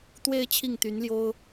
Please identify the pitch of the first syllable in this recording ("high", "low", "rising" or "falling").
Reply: falling